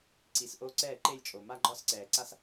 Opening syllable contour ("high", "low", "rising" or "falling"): rising